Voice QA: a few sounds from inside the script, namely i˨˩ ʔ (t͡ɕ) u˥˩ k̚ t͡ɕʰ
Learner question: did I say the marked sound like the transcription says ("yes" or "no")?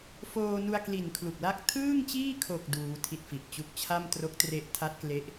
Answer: yes